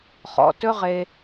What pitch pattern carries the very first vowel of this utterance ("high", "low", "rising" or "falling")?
low